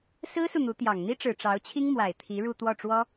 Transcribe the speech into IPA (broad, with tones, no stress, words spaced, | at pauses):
sɹ̩˥su˨ n̪u˧˥t̪jɑ˨˩ŋ n̪i˥ʈ͡ʂɻ̩˨˩ ʈ͡ʂɑ˧˥ʊ̯t͡ɕʰi˥ŋmwa˨˩ɪ̯ t̪ʰi˧˥ɻu˥˧ t̪wɔ˥˩ʈ͡ʂwɔ˥